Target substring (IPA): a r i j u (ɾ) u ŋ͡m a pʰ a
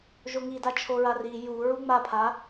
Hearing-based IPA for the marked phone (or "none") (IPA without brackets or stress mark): ɹ